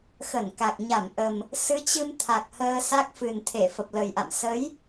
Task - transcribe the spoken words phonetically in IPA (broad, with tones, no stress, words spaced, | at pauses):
xə˧˩nka˨˩k̚ ɲa˧˩mʔə˨˩m | sɨ˨˦t͡ɕɨ˧m t̪ʰa˨˩k̚həː˧ sa˦˥k̚fɨ˨˩nt̪ʰe˧˩ fə˨˩p̚lə˨˩jʔa̰˧˨m sə˨˦j